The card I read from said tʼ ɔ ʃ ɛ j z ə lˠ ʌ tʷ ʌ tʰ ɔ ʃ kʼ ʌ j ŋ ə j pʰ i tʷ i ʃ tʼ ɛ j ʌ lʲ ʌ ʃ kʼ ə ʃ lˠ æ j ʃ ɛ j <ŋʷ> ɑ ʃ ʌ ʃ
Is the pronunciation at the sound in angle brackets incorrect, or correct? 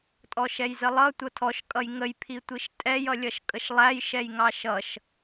incorrect